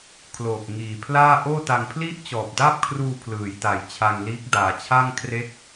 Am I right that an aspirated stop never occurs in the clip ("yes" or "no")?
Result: no